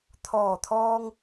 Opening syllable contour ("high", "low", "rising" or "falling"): low